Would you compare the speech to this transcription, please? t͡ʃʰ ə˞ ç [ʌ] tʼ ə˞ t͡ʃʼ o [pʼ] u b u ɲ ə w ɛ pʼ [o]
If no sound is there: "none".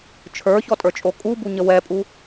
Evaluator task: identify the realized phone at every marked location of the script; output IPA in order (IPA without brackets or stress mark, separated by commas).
ɔ, kʼ, u